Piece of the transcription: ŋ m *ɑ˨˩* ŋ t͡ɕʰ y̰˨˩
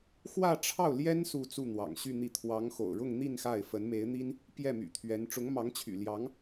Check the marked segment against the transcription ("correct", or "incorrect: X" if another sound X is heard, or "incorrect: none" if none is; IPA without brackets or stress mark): incorrect: ɑ˧˥